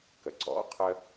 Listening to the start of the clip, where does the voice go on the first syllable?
low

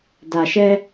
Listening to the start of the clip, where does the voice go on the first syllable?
low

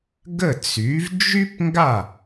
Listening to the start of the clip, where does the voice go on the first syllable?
falling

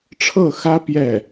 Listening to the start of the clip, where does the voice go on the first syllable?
falling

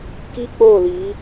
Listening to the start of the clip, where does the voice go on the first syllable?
high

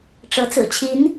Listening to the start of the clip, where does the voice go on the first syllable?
rising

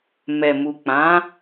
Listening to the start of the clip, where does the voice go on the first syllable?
low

